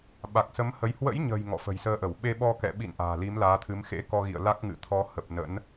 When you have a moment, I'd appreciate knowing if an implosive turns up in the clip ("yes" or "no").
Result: yes